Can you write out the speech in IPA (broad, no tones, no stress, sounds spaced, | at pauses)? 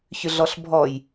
ç ʏ ɮ ɔ ɬ bʱ ɔ j